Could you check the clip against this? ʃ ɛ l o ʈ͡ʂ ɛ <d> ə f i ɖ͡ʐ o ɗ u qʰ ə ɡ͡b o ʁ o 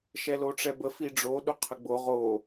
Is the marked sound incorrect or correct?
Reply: incorrect